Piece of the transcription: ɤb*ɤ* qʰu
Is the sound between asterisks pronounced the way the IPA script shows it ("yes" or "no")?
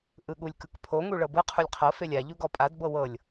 no